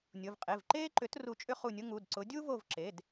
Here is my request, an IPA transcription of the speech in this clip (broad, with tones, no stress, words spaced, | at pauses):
nʲʊ˩˧˩vqʼe˩˧˩vǃeː˥ǃʏ˨˥t ru˦˨t͡ʃʼʏ˥χu˦˨nʲʊ˥ ŋu˩˧˩dǀʊ˨˥ dʲu˥vo˦˨vǁe˩˧˩d